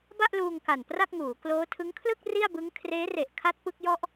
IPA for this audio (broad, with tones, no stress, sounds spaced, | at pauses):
b a˥˩ ʔ l uː˧ ŋ k a˨˩ n p r a˥˩ k̚ ŋ uː˩˦ k l oː˦˥ tʰ ɯ˦˥ ŋ kʰ l ɯ˥˩ k̚ r i˥˩ a̯ b ɯ˦˥ ŋ kʰ r eː˦˥ r e˨˩ ʔ kʰ a˦˥ t̚ p ɯ˦˥ k̚ j ɔ˥˩ ʔ